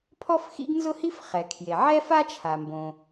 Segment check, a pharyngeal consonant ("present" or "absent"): present